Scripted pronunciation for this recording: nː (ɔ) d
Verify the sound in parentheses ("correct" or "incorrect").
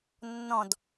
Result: incorrect